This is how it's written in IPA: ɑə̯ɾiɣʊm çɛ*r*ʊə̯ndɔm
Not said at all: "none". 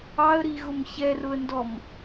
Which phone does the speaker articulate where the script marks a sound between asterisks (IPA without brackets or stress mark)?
r